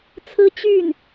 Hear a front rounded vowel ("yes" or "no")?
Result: yes